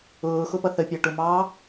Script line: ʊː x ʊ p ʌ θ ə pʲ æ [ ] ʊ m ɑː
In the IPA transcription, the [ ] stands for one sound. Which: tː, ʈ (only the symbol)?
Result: ʈ